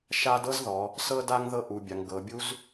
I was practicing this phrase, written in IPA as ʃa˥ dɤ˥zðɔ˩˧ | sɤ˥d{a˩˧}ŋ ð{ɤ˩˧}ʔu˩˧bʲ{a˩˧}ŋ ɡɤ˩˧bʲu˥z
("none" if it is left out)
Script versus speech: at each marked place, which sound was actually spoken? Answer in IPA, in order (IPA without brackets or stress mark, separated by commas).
a˥, ɤ˥, a˩˧